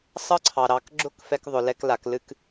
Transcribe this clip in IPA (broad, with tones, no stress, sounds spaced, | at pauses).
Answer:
sˤ ɤ˥ ǀʰ ɑ˩ ɾ ɑ˩˧ k ɡ͡ǁ ʊ˥ k f ɛ˧ k ðˤ ʊ˩˧ l ɛ˧ k l a˩˧ k l ɨ˧ k